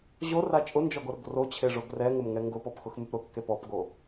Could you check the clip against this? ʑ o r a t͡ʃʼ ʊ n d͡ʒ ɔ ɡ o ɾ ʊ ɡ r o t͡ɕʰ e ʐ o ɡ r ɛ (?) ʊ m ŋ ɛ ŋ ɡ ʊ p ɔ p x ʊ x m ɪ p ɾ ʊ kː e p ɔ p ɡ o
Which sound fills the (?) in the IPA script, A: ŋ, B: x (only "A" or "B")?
A